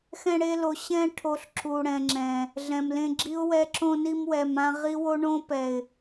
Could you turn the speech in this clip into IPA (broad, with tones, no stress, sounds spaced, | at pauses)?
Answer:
x ɛ̃˧ ɽ e˧ l o˨ ɕ ɛ̃˧ ʈʰ o˨ ɬ ǁ u˨ ɽ ɛ̃˨ ŋ͡ǁ ɛ̃˨ | ɮ ɛ̃˨ m l ẽ˧ ɡ͡ǁ i˦ ʊ̯ w ɛ˦ ǁ õ˧ n i˧ m w ɛ˨ m ã˧ ʁ i˦ w o˦ ɳ õ˦ p ɛ˨ ɪ̯